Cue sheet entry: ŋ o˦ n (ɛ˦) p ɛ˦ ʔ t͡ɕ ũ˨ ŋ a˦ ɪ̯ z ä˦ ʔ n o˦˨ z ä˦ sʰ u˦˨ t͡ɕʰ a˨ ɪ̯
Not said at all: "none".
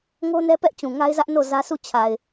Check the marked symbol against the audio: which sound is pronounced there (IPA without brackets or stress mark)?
ɛ˦